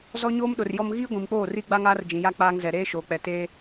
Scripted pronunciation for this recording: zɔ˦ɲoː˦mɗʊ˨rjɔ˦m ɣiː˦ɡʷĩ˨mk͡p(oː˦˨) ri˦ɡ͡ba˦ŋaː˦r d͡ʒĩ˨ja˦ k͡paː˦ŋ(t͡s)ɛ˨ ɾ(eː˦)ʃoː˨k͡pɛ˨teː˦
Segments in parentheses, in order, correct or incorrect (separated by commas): correct, incorrect, correct